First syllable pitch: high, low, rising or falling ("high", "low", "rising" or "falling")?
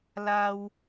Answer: low